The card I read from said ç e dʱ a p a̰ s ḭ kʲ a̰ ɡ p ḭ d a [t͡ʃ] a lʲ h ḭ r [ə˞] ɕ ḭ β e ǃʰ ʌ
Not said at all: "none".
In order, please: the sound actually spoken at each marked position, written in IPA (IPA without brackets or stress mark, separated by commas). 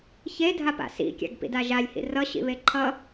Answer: ʒ, ʌ